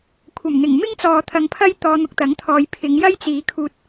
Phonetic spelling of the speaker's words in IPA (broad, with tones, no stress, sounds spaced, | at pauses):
kʷʰ ɐ˨˩ m n̪ ɪ˨˩ ŋ m ɪ˥ ŋ t͡s ɔː˨ t̪ʰ ɐ˨ ŋ pʰ ɐ˥ j t̪ ɔː˧ n̪ ʊ˧ k̚ t̪ ɐ˨˥ ŋ t̪ʰ ɔː˨˧ j pʰ ɪ˨˧ ŋ j ɐ˥ j t͡s iː˨˧ kʰ uː˧ t̚